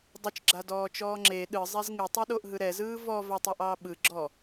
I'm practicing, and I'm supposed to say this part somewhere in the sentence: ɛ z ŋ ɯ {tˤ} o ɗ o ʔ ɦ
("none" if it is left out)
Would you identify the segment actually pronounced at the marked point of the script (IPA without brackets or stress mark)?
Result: tˤ